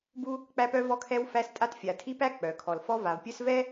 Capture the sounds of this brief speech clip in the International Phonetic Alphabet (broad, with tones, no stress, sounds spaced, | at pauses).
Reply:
b u˦ | k͡p æ˦ p œ˦ v ɔ˦ kʰ ɛ˦ w f æ˦ s tʼ a˦ t fʲ a˨ tʰ i˦ p æ˦ k͡p œ˨ kʰ ɔ˨ l f ɔ˦ v a˨ v pʲ œ˦ s v ɛ˦